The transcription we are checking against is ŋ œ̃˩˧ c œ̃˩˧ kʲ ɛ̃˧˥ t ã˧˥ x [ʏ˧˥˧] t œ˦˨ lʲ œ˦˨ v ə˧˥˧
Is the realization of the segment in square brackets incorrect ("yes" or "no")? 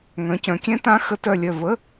yes